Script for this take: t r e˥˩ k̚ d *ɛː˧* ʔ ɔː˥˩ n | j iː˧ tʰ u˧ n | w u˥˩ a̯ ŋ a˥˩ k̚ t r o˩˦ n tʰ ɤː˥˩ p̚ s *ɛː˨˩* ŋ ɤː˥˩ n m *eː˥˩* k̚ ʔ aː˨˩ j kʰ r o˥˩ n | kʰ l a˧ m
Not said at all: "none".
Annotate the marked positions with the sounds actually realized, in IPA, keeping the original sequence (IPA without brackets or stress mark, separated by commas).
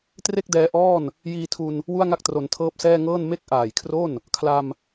ɛː˧, ɛː˥˩, e˥˩